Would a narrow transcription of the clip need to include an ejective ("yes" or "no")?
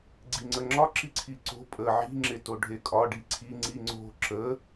yes